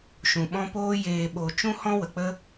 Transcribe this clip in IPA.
ʃ ũ˨ ɓ ɔ̃˦ p oː˦ j eː˨ ɓ o˨ t͡ʃ ũ˦ h ɔ̃˦ w ə˨ k͡p ə˦

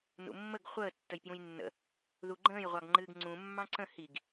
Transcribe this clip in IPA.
n ṵ mː ə ɡ χʷ əː tː ə j p j ũ j nː ə̰ | ð u ɡ͡ǃ ə̃ː j ʁʷ ɑ ɡ ŋ͡ǃ ɨː ɡ ŋ͡ǀ ũ mː ɑ̃ ǀ ə̃ h i ɡ

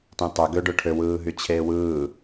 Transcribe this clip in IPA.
t ẽ tˤ ø ɡ ø ɖ ø ʈʰ ø w ɯː ɦ y t͡ɕʰ eː w ɯː

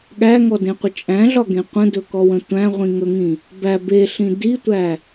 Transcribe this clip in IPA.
ɠ æ ŋ ɔ d ẽ qʷ ə t͡ʃʼ æ̃ ɮ ɒ ɡ ẽ qʷ ə̃ d ɵ k ɔ w ə̃ tʷ æ̃ ʁʷ ĩ ŋ ɵ ŋ ĩ | b æ b e ɬ ĩ d i tʷ æ

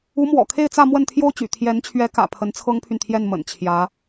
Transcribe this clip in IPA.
u˧˥ m w ɔ̰˨˩ kʰ e˥˧ ɪ̯ t͡s ä˥˧ m w ə˥˩ n t̪ʰ j o˥ ʊ̯ t͡ɕ y̰˨˩ t̪ʰ j ɛ˧˥ n t͡ɕʰ ɥ ɛ˧˥ k ä̰˨˩ pʰ ə˧˥ n t͡sʰ ɤ˥ ŋ pʰ y˨ n t̪ʰ j ɛ˥˩ n m ə̰˨˩ n t͡ɕʰ j ä˧˥

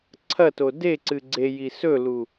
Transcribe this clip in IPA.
ǀʰ ɐ t o d e ǀ ɨ ɡ͡ǀ e j i s ɵ l u

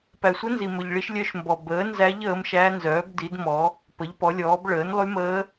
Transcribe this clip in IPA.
p æ˩ sʷ ə˧˥ n z i˩ m ɵ˩ ʎ ɭ i˧˥ ʃ lʲ œ˧˥ ʃ m b ɔ˩ b əː˩˥ n z æ˧˥ ʎ əː˩˥ m ʃ æ˧˥ n z œː˩˥ b d i˩˥ d m ɔ˩˥ | p ə˩˥ ʎ p ɔ˩˥ lʲ ɔː˩˥ b ɭ əː˩˥ n lˠ y˧˥ m əː˧˥

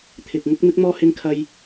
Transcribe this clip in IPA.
t̪ʰ ɪ˨ k̚ ŋ ʊ˧ k̚ m ɪ˧ k̚ m ɔː˧ h ɪ˧ ŋ kʰ ɐ˧ j

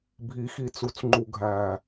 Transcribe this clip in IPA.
bʱ i˨ x i˨ t͡s u˨ t͡s ŋ͡ǃ u˨ ɡʱ æ˨

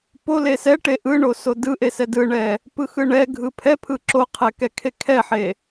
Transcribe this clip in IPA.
p o l e s ɛ ʈ e ʔ ɯ ɳ o s o d ɯ ʔ e s ɛ d ɯ ɳ ɛ | p ɯ x ɯ ɳ ɛ ɡʱ ɯ pʰ ɛ pʰ ɯ ǁ o qʰ ɛ k ɛ kʰ e kʰ ɛ ħ e

